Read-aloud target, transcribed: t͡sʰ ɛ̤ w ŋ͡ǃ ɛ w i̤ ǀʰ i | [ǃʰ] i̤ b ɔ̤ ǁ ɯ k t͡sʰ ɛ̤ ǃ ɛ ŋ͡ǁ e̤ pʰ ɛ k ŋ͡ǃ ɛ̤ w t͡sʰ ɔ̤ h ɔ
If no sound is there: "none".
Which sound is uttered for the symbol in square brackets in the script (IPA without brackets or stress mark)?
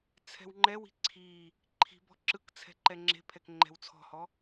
ǃʰ